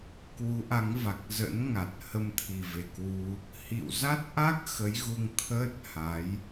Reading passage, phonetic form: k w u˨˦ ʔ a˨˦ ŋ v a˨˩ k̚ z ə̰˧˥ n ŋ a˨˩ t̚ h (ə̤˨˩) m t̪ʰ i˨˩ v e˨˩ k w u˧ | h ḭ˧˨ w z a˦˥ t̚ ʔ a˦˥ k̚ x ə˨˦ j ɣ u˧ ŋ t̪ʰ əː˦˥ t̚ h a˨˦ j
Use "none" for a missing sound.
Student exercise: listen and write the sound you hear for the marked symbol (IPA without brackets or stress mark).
ə˧